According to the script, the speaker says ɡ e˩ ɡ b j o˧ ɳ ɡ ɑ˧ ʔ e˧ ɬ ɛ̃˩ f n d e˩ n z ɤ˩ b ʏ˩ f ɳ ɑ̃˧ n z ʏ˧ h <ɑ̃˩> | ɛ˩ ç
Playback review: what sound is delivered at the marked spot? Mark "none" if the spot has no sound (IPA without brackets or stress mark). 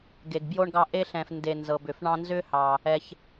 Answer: ɑ˩